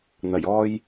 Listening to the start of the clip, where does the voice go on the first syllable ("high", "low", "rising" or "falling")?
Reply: low